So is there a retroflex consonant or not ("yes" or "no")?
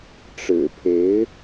yes